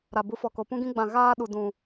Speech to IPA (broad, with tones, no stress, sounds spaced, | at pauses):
ɾ a˨ b u˨˦ f ɔ˨ k o˨ p ũ˦ ɡ ĩ˦ ɡ͡b ã˧ ɣ aː˦ ɗ u˨ d ũ˨